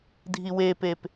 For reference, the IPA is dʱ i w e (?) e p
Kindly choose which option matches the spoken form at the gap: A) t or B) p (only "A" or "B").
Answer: B